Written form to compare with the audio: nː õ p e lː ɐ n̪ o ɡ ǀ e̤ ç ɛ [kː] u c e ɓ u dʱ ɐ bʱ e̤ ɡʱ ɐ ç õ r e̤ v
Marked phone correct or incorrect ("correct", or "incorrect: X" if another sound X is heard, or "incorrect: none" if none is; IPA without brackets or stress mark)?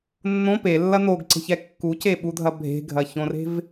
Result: correct